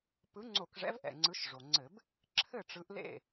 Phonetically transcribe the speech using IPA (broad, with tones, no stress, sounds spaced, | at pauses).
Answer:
p ɯ˨˦ ŋ͡ǀ o˧˩˧ k ʐ ɛ̰˨˦ v ʔ ɛ̰˩ ŋ͡ǀ ɯ˨˦ ʃ ʐ o˩ ŋ͡ǀ ɘ˧˩˧ b | ǁʰ ɘ˥˩ ʈ͡ʂ ɯ˨˦ ʔ l ḛ˥˩